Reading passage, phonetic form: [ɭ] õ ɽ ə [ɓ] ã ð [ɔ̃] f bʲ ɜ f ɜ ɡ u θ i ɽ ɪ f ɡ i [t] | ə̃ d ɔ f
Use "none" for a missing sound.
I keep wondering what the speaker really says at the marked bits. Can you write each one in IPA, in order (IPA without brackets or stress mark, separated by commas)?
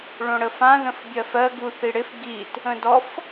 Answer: ɭ, f, ə̃, t